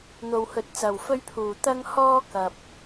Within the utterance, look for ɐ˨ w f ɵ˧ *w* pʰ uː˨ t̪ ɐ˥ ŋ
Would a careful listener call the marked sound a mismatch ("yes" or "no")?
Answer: yes